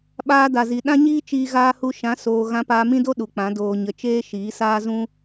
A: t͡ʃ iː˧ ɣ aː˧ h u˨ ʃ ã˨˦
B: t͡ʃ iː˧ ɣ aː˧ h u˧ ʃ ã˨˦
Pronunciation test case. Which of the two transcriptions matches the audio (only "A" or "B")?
B